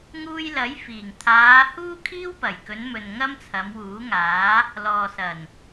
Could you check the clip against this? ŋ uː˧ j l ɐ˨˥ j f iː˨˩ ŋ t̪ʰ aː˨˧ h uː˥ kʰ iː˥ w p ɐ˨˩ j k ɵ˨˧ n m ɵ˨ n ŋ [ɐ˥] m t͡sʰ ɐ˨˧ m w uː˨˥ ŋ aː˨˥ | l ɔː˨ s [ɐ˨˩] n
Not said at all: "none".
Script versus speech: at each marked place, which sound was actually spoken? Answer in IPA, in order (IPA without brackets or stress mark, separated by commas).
ɐ˥, ɐ˨˩